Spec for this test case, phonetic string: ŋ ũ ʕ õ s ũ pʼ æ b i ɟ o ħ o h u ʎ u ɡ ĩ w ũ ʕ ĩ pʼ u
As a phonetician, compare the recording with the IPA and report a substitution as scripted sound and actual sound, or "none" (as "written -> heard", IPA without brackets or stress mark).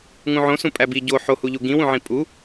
none